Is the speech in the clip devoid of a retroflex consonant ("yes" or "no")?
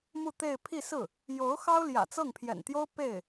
yes